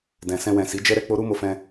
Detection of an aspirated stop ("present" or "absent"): absent